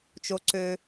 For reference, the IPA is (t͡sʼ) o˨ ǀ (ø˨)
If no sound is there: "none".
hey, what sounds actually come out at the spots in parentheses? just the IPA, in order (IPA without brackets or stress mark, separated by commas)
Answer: t͡ʃ, ø˨